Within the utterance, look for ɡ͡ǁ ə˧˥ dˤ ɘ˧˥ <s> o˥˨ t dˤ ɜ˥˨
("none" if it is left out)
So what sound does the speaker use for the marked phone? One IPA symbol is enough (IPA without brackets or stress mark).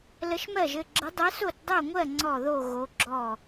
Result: s